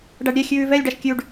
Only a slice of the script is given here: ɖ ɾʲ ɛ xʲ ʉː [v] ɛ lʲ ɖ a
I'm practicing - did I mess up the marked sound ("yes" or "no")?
no